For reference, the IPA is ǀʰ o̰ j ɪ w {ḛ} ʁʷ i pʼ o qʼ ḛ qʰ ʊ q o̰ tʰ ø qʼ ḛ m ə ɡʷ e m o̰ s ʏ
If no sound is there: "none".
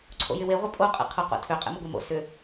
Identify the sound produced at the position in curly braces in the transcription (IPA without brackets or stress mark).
e